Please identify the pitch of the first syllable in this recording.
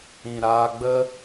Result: low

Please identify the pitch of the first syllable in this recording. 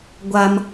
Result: high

